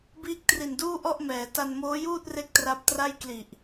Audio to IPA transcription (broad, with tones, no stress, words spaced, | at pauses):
biː˦˥k̚tri˨˩nduː˥˩ ʔɔ˥˩ʔmɛː˩˦ ta˧nmoː˦˥juː˥˩t̚re˦˥k̚ tra˦˥p̚ tra˥˩j kli˨˩ʔ